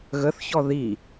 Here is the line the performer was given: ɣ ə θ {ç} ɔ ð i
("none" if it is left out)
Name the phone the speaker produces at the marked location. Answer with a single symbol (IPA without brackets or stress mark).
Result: ç